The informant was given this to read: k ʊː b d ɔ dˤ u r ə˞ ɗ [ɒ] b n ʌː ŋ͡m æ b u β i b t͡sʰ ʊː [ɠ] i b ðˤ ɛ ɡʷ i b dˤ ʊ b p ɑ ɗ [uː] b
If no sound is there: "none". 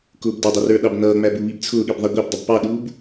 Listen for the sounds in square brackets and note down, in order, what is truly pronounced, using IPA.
ɑ, ɠ, uː

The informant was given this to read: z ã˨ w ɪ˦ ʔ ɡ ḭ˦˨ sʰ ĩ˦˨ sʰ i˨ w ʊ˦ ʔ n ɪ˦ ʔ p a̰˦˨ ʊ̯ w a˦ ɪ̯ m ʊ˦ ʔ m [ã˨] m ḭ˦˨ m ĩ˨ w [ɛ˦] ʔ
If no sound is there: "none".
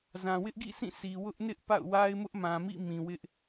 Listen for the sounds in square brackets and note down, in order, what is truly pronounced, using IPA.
ã˨, ɪ˦

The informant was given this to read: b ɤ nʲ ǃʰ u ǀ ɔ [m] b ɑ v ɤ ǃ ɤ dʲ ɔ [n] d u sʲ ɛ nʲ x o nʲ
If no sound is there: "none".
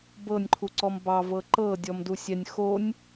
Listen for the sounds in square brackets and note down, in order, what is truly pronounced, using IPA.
m, m

